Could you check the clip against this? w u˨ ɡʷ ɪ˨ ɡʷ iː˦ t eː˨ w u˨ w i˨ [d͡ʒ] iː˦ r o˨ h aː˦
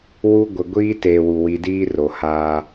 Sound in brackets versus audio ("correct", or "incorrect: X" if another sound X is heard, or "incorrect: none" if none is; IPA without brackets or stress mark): incorrect: d